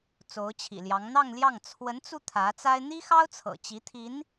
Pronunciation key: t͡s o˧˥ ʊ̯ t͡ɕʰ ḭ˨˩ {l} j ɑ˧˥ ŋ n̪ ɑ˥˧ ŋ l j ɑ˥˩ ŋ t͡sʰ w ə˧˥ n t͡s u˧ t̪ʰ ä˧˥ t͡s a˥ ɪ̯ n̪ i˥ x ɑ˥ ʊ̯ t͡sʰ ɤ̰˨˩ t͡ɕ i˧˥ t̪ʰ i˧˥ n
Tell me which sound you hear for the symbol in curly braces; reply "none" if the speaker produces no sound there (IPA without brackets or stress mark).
l